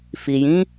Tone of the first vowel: low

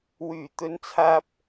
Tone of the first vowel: low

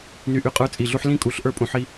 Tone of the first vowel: low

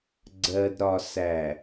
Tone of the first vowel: low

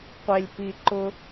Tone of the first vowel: low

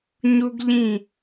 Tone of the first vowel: high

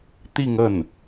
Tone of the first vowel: falling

